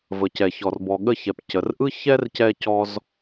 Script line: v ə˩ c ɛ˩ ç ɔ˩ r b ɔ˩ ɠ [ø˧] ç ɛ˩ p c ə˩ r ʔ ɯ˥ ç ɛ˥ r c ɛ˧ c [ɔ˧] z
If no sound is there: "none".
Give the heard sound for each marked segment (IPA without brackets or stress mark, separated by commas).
ə˧, ɔ˧